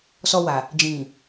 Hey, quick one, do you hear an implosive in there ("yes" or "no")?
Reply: no